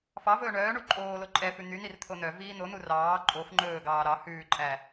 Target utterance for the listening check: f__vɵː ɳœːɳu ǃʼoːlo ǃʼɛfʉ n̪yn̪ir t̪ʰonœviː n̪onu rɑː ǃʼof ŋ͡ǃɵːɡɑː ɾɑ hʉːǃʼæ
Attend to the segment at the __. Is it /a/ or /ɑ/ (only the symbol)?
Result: ɑ